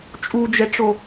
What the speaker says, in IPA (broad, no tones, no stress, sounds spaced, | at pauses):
t͡ʃʼ u d͡ʒ ɛ ʈ͡ʂ o